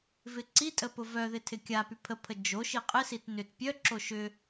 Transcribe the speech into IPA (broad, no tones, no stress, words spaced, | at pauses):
vɪǀitʼə pʊvœðɪ tʰɪkʲapy pʰəpʰə d͡ʒo ʃiqʼɪsit nʏt pʲœǁo ʃʏ